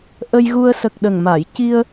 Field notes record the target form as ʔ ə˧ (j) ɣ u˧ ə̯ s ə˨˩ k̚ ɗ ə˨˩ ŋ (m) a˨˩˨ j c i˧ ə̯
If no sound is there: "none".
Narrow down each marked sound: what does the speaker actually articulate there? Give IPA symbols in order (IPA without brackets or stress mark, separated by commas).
j, m